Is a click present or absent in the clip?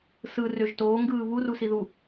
absent